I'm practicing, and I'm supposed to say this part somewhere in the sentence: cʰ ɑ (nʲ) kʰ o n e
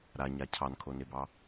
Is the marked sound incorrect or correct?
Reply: incorrect